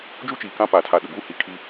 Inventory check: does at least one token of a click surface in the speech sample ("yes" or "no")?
no